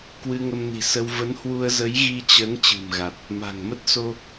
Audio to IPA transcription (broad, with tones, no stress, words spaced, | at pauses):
kwɨ˧ŋə˧mni̤˨˩sə˧w və˨˦nhwu˧ə̯zə˨˦j ɣi˧t͡ɕə˨˦n t͡ɕɨ̤˨˩mɣa˨˩t̚ | ma̤˨˩ŋ mə˦˥t̚so˧